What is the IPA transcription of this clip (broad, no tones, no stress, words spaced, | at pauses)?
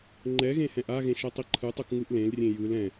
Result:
ŋ͡ǃɛɣẽ hɛ̃ʔaɣẽ ʃɛtˤiǃʰɯtˤuk ŋɯʔlẽlrʲẽ jɯl ɛ̃